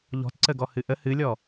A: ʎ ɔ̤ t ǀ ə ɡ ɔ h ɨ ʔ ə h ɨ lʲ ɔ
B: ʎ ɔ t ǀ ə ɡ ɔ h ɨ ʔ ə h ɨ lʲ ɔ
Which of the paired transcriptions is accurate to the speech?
A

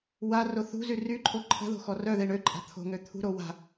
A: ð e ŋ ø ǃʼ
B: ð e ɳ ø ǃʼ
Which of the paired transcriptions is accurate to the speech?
B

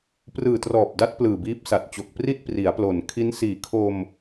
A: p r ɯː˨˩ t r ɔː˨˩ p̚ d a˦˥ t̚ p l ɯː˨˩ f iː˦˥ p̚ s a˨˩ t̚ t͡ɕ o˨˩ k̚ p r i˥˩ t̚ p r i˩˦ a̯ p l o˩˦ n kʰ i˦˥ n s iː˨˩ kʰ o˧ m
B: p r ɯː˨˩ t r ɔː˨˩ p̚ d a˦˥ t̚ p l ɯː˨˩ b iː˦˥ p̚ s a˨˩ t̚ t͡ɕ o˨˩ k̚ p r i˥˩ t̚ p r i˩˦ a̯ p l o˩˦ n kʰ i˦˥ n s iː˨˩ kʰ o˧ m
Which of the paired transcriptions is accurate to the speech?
B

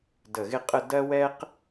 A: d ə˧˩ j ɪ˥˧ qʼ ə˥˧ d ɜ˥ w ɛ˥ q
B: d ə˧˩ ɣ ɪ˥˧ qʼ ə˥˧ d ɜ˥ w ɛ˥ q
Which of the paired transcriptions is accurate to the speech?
B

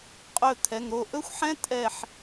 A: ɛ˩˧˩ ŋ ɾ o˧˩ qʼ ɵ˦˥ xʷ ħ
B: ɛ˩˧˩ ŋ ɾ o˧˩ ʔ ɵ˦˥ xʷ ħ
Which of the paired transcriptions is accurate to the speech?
B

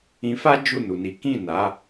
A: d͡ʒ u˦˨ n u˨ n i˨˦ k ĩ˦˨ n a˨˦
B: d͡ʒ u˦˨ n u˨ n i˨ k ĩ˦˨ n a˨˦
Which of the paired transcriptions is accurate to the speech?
A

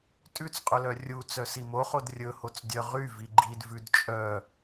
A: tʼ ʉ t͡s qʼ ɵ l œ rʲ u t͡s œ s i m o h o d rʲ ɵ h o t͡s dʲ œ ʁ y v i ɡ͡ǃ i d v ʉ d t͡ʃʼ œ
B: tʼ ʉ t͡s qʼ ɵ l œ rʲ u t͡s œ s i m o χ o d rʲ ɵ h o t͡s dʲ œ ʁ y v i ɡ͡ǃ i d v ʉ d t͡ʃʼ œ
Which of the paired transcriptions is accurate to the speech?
B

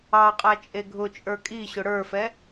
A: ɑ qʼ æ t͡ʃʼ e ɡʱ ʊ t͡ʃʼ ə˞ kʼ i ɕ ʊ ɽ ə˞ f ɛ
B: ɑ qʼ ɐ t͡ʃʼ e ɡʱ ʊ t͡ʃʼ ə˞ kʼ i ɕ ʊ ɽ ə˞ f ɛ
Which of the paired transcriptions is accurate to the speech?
A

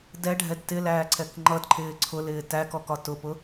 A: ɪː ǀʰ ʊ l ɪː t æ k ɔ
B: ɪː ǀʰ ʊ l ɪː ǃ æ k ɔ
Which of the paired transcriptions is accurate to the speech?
A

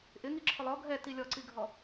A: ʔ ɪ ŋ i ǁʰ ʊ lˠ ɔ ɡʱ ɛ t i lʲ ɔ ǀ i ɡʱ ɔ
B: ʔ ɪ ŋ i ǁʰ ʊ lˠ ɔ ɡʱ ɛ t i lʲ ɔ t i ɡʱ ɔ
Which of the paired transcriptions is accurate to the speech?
A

